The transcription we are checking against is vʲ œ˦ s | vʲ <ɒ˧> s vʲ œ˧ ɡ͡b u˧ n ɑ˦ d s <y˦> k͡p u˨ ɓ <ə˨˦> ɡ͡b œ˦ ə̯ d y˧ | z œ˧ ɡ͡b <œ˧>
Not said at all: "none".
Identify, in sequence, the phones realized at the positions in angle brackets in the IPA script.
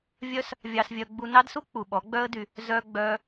ɑ˧, u˦, ɔ˨˦, œ˧

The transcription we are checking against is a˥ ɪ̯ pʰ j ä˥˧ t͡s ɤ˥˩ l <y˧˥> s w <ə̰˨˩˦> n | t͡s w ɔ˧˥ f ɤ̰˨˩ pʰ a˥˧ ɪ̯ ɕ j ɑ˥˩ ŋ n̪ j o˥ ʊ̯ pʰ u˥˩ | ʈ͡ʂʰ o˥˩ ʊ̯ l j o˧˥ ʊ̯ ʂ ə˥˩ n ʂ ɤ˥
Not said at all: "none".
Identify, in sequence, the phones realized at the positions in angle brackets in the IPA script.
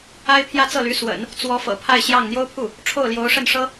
y˧˥, ə̰˨˩˦

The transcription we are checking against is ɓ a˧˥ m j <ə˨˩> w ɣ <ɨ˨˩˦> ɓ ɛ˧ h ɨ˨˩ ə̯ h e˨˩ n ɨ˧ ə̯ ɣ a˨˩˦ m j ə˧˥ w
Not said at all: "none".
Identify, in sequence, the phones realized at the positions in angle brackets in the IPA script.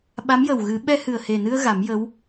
ə˨˩, ɨ˨˩˦

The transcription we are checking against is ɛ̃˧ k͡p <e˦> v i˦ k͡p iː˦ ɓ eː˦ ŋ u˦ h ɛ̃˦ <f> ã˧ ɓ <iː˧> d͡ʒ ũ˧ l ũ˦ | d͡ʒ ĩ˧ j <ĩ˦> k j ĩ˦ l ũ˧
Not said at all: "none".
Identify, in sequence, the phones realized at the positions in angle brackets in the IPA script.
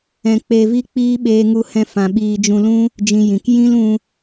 e˧, f, iː˧, ĩ˨

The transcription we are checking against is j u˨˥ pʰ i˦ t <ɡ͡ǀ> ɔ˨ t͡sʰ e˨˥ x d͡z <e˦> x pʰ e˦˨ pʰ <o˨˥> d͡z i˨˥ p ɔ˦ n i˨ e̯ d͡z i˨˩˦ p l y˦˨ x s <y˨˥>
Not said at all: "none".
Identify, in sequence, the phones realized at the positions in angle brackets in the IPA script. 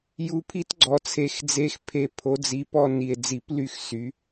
ɡ͡ǀ, e˦, o˨˥, y˨˥

